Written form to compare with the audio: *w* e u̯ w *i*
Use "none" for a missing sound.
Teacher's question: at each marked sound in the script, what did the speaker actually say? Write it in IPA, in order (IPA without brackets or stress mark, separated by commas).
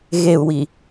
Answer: ɣ, i